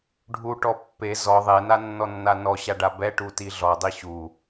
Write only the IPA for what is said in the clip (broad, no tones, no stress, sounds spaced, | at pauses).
ɖʱ u ʈ ɔ pː e z ɔ ðˤ e n a nː ɔ nː a n ɔ ɕ a ɖ a b ɛ ʈ u t i ɮ ɔ dˤ i ɕ u